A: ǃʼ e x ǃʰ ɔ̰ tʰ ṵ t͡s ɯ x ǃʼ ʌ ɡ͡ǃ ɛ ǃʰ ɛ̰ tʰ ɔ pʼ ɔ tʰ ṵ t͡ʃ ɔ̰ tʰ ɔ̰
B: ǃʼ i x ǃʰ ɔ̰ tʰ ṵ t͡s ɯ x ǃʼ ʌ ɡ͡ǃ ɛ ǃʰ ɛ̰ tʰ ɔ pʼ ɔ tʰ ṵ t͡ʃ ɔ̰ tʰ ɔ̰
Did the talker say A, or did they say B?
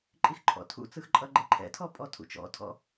B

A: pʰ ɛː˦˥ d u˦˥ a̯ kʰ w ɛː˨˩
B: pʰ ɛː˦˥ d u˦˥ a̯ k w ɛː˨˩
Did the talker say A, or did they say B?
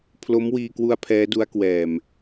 B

